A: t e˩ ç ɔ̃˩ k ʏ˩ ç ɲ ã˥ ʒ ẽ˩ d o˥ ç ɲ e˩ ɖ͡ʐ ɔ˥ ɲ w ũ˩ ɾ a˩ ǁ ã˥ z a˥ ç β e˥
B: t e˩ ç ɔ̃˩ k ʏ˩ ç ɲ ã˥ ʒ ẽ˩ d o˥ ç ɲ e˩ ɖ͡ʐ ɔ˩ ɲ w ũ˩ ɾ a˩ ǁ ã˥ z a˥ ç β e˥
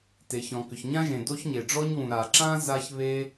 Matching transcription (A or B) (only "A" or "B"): A